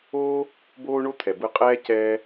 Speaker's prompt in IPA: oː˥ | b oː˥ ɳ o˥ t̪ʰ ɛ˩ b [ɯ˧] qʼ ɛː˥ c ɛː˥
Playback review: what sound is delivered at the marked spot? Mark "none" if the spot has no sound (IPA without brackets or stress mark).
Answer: ɯ˧